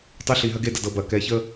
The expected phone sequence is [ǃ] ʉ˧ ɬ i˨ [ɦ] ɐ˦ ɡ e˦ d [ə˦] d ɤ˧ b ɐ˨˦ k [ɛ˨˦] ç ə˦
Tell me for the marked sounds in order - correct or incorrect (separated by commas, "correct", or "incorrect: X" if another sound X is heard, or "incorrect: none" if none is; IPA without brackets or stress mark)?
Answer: incorrect: tˤ, correct, incorrect: ə˧, correct